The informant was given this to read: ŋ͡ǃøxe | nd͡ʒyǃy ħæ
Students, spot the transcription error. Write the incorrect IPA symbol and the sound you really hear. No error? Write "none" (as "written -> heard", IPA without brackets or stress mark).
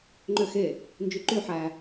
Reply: none